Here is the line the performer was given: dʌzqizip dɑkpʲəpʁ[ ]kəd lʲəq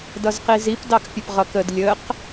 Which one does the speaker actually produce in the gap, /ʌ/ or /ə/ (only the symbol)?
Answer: ʌ